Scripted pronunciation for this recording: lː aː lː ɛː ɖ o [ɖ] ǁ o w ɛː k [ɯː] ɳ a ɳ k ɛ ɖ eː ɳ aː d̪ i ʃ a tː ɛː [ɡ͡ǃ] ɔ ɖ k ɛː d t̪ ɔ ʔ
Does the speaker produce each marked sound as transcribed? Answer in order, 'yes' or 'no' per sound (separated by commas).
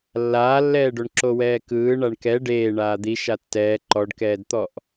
no, yes, no